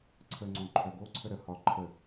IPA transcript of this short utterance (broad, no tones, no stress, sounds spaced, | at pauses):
ǀʰ ə ŋ͡ǀ õ ǃʰ œ ɡ o ǀʰ ə ɾ ə h ɒ ǃʰ ə